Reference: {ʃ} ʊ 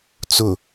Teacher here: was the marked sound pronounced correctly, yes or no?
no